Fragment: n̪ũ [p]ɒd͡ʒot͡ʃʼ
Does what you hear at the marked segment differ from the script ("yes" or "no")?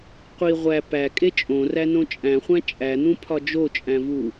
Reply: yes